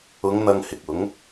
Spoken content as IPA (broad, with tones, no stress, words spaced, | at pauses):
ʊ˨˧ŋ n̪ɐ˧ŋhɪ˨k̚ʊ˨˥ŋ